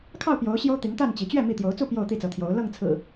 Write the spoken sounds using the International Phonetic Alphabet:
kʰɑ˥˨ʊ̯pjo˨˦ʊ̯ ɕjo˦ʊ̯t̪i˨˦ŋt̪a˥˨n t͡ɕi˨˦ t͡ɕɥɛ˥˨ mi˥˨ t̪jo˨˦ʊ̯t͡su˥˨ pjo˥˨ʊ̯t̪i˥˨t͡sɤ˨˦t̪ʰjo˨˦ʊ̯ lɤ˥˨ŋt͡sʰɹ̩˨˩

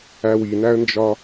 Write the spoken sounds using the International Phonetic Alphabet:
æwinæə̯nd͡ʒɒ

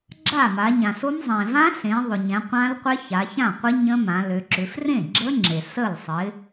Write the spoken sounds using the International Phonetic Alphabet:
ɡ͡ǁa˥˩ma˩˧ɲã˩so˦˥m zˤẽ˩vã˦˥ɬẽ˩˧ ðˤʊ˩ɲɛ̃˩˧qʷã˦˥lqʷɪ˦˥ ça˩˧çã˥˩qʷɪ˦˥ ɲə̃˦˥mã˩˧ lø˩˧ ǁʏ˩˧f rẽ˥˩ɡ͡ǁə˦˥ŋ͡ǁe˩ sə˥˩lsˤɪ˨˥

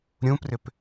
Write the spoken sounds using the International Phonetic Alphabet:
ɾʲũprʏp

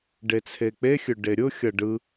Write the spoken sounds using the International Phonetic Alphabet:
ɖet͡sʰek͡pexʲɵ ɖeɾʲʊxʲʌ ɖɯ

